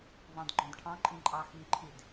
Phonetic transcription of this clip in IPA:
vɑ̃dɡ͡ǃɔ̃dʈʰɑ̃ǃʼĩ ǃʼɑxiǃʰid

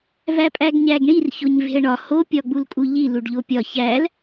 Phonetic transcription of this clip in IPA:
væpʼæɡɲæɡɳir çoɲve̤ə̯ɳɒ ho pʲɒɡ͡bulkʼuʎi luɖʎopʲɒ çæl

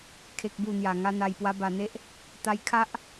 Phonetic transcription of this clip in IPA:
kʰe˨k̚bu˨˩ n̪ja˨˩ ŋa˧ n̪a˨˩jpwa˧ba˨˩n̪e˦ʔ | t̪a˧j kʰa˦ʔ

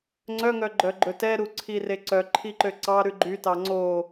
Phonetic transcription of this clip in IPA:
ŋ͡ǀœŋœ ɡ͡ǃœɡ͡ǃɵtɛɾu ǀʰireǀœ ǃʰiǃøǀɑɾʉ ɡ͡ǃytɑ ŋ͡ǀo

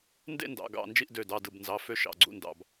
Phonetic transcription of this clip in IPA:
ndḛ˦˨ndɑ̰˩˧˩ɡɑ̰˩˧˩ nd͡ʒi˦˨ʔdø˩˧˩dɑ˩˧˩ dɯ˩˧˩bnzɑ˩˧˩ fø˦˨ʃɑ̰˩˧˩ɡ͡ǀṵ˦˨ndɑ̰˩˧˩b

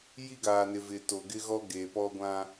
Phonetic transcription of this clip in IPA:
ji˦ɡaː˨nɪ˨vɪ˨ to˨ɡɪ˦ɣɔ˦ ɡe˨ pɔ˦ɡʷã˦

